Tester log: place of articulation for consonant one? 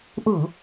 glottal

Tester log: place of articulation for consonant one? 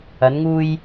alveolar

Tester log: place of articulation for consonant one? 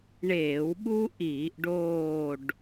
retroflex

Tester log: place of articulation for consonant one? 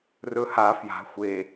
alveolar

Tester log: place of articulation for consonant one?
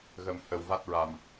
velar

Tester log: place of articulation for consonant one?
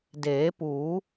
alveolar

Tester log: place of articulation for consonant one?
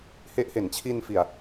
glottal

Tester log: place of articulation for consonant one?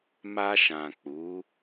labial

